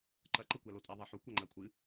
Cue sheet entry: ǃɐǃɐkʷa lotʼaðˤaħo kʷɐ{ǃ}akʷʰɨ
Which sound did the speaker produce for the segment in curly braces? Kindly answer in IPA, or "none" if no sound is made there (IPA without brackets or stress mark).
ŋ͡ǃ